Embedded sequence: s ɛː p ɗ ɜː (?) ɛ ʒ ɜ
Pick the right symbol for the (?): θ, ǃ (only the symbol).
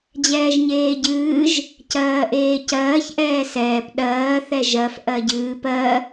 θ